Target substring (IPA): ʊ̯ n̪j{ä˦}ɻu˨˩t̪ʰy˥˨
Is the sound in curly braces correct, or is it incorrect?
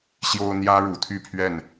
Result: correct